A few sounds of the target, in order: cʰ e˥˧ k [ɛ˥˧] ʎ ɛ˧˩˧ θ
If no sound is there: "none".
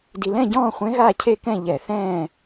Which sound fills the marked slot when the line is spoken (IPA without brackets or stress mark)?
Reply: ɛ̃˥˧